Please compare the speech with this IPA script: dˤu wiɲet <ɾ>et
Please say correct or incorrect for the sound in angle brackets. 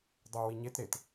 correct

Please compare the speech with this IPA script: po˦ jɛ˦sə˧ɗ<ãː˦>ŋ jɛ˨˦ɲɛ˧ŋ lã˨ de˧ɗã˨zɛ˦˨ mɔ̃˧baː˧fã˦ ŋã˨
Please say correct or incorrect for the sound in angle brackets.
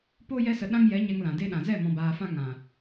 incorrect: ã˦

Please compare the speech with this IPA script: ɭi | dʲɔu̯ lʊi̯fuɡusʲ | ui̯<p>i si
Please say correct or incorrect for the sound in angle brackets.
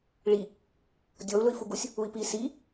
correct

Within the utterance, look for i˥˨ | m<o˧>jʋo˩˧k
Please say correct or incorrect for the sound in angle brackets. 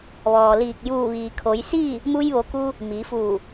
incorrect: u˧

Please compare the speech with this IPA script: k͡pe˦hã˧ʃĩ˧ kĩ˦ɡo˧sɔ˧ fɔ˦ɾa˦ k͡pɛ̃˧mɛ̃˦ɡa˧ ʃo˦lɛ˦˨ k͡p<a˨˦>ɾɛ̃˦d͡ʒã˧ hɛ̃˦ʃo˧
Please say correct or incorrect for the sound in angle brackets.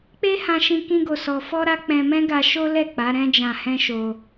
correct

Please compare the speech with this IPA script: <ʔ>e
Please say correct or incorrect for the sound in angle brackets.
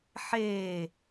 incorrect: ħ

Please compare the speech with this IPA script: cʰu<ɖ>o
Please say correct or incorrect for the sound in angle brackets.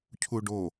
correct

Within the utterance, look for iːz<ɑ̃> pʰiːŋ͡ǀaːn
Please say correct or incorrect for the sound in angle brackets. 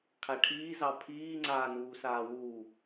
incorrect: ɑ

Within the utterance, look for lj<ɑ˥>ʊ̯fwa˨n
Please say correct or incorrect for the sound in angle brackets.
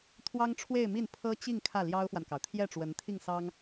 correct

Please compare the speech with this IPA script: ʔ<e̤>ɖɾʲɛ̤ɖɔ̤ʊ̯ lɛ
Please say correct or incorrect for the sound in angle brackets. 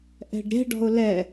incorrect: ɛ̤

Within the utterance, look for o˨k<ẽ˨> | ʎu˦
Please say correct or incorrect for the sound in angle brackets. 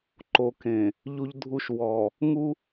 correct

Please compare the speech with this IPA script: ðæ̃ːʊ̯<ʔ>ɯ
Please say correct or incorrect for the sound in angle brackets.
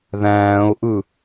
correct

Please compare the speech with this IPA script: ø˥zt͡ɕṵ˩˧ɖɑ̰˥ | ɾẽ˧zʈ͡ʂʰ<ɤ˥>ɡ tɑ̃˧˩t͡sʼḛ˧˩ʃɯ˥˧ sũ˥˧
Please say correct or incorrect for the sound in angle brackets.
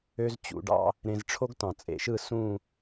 incorrect: o˥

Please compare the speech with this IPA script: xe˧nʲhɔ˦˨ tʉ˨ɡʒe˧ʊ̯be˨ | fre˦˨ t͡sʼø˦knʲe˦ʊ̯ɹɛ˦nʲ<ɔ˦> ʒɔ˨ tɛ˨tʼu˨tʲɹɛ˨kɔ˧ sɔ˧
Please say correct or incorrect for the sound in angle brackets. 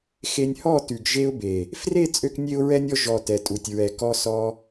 correct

